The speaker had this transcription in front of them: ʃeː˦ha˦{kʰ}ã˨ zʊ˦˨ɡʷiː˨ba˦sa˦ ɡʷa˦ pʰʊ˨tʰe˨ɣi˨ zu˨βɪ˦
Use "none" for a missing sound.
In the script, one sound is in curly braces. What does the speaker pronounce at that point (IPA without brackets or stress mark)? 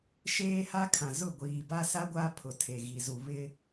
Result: kʰ